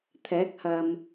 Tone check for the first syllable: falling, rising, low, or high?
rising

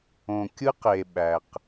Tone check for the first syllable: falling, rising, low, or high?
low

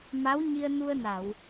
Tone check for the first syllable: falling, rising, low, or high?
rising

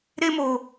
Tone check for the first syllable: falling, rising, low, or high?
high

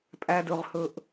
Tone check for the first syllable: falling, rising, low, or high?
high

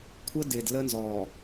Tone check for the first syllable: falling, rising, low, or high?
high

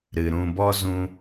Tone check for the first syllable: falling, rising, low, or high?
low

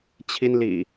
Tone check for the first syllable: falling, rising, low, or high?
high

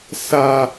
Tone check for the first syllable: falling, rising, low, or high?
high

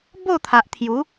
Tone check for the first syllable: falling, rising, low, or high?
falling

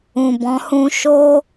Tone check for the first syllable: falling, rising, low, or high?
low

